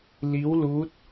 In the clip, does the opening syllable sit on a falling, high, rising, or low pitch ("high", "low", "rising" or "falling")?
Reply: rising